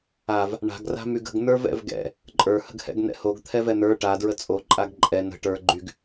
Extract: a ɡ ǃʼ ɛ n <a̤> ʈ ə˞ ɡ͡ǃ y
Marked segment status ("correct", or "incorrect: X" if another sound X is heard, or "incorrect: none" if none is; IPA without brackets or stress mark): incorrect: ə̤